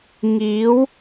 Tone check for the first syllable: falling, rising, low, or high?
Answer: rising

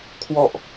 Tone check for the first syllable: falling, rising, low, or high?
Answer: low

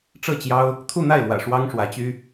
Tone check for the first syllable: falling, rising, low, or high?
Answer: falling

